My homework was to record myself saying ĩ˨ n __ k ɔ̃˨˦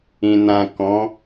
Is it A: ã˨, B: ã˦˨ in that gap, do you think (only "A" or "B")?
A